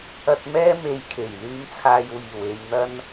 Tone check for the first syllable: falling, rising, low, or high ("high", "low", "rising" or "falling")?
low